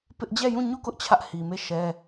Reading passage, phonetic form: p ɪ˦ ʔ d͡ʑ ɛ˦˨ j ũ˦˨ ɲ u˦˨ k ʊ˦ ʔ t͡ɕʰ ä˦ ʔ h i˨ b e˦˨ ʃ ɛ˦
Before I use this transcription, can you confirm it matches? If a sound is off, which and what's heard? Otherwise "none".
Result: b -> m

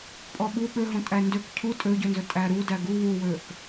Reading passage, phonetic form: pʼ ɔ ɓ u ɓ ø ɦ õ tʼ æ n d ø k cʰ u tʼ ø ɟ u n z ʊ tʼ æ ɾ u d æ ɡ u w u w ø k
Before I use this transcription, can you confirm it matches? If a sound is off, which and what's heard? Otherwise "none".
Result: ʊ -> ɵ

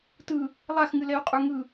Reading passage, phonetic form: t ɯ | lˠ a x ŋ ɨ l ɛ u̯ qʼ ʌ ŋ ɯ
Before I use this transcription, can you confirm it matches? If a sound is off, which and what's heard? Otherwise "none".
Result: ʌ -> ə˞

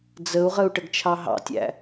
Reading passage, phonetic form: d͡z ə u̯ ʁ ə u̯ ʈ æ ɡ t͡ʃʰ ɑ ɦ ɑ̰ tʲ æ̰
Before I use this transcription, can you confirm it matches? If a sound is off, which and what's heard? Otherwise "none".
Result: æ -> ə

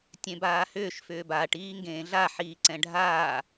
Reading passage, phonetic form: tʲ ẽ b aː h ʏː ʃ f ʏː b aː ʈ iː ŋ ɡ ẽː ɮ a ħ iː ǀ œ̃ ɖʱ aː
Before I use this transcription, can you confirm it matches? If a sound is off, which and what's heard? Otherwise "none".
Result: œ̃ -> ɛ̃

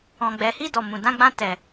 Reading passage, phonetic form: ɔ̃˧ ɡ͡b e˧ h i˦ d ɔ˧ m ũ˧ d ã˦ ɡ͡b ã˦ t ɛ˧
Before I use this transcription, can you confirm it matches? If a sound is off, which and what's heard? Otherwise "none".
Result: e˧ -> ɛ˧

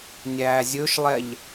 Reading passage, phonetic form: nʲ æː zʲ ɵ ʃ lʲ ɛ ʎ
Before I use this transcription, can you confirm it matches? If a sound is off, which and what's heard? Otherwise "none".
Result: lʲ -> lˠ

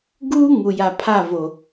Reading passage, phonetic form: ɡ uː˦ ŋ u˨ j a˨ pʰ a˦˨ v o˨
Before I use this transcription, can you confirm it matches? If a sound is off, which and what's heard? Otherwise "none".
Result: none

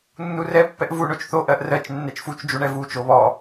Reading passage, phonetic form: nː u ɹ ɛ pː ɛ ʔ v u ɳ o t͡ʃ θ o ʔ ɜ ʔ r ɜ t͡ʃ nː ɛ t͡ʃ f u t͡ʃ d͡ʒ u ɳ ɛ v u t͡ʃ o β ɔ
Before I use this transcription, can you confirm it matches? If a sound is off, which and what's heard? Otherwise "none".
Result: ɹ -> r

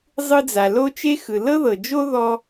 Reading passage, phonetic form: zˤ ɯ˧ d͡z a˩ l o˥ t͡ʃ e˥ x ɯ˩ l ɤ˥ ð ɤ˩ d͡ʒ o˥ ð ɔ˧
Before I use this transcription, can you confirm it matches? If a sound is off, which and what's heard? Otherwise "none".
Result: none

